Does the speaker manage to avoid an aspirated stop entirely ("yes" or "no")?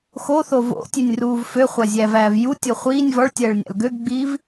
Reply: yes